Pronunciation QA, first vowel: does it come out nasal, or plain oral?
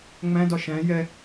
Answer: nasal